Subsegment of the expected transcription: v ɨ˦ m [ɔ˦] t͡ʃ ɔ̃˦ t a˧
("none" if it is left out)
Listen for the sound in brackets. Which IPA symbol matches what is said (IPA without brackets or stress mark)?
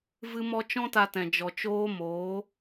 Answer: ɔ˦